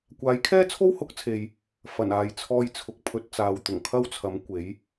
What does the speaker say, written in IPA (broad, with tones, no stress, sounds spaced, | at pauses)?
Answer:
kʷ aː˨˥ j kʰ ɛː˥ t͡sʰ o˥ w h ʊ˨˥ k̚ t͡sʰ e˨ j | f ɐ˨˩ n aː˨ j t͡sʰ ɔː˧ j t͡sʰ ʊ˨˥ k̚ pʰ ɵ˨˥ t̚ t͡s aː˨ w t̪ ʊ˨˩ ŋ kʰ ɐ˥ w t͡sʰ ɐ˨˥ m kʷ e˨˥ j